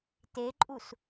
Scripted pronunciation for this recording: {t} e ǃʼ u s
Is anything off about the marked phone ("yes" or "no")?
no